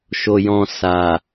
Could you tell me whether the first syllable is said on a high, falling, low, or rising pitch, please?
low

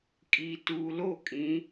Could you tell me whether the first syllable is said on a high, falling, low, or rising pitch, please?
low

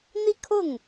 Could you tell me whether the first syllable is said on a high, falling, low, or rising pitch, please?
falling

